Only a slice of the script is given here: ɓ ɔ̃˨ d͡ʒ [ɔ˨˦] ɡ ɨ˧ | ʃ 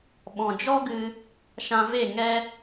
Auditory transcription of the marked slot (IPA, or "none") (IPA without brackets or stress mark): ɔ˦